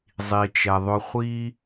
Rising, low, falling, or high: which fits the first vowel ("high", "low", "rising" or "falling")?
low